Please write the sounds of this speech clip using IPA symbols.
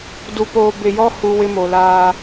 du˨poː˨ bɪ˨jɔ˦hu˨ wɪ˦mo˨laː˦

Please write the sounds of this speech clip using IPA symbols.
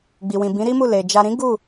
ɡ͡bi˨wĩ˨bĩ˨˦ ɾi˦mu˦˨le˨ d͡ʒa˨ɾĩ˨˦ ɡu˦˨

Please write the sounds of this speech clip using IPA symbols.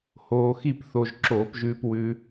hoː˧xi˥˨pθo˧ʒ ǁoː˧˩˧pʒʉː˧p wʉ˧

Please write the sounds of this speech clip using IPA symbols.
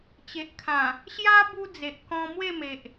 t͡ɕe˨ʔkʰã˨˩ | ɕja˦ bu˦d͡ze˨ʔ kɔ̃˧ mwe˥˧me˨ʔ

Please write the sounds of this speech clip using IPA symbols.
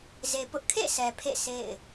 ze˨pʊ˦ʔ kʰḛ˦˨ sʰɛ˨pʰḛ˦˨ sʰḛ˦˨ɪ̯

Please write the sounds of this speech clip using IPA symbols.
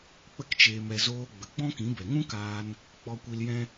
k͡pə˦kt͡ʃeː˧mɛ˧ zoː˧ ɡ͡bə˨ɡ͡bɔ̃˦kĩ˨˦ bɛ˨ŋũ˦kaː˧n | k͡pɔ˧kʷi˧ljɛ̃˦

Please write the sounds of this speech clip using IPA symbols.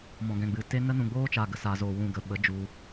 mɔ̃˨ɡɛ̃˨ɡ͡bɨ˨ te˧ nə˦nũ˨ɡ͡boː˦t͡ʃa˨ ɡə˨sa˨zoː˨ wũ˨ɡə˨ɓə˨˦ d͡ʒu˧

